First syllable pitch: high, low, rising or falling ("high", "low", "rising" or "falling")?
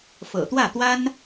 low